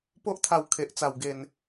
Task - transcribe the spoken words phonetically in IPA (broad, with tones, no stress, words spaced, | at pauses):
po˦ʔt̪ʰa˧w kʰe˨ʔt͡sa˨˩wɡe˨˩n